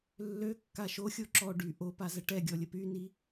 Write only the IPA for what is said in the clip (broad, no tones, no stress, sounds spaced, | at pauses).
lː ø kː a ʃ o xʲ o ǁ ɔ ɖ y ʔ o p a z ə ʈ ɛ ɡʲ ɔ lʲ ə p y n i